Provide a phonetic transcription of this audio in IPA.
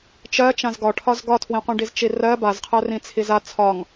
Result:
t͡ʃ ɜ t͡ʃ ã z ɡ ɒ ʈʰ ɒ z ɡ ɒ tʰ w ĩ qʷ ĩ ɖ i z t͡ʃ i r ɜ b a z qʰ ɜ r ĩ t͡sʰ i z a t͡sʰ ɒ ŋ

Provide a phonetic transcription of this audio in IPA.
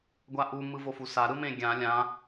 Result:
ɡʷ a ʔ u m ɯ v o f u s a ɾ ɯ m ẽ ɡʲ ã lʲ ã

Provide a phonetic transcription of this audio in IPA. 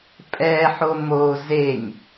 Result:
pʼ ɛ ħ o m o z e ɲ

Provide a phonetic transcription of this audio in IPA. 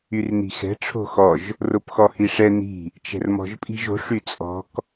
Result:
y r n i̤ x ɛ̤ ʈ͡ʂʰ o̤ x ɔ ʒ | r o p x ɔ h i ʂ ɛ n i̤ | t͡ʃ ɛ̤ r m ɔ̤ ʒ pʼ i̤ ʒ o̤ ʂ y t͡sʼ ɔ̤ k

